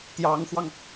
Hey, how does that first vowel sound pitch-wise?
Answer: rising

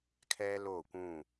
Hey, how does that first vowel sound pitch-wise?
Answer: high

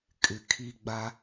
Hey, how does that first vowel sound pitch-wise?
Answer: low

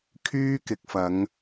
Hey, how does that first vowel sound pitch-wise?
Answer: high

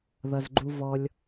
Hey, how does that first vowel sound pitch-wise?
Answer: low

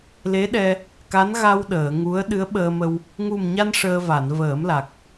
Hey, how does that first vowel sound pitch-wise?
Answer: rising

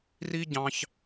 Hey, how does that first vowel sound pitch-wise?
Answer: high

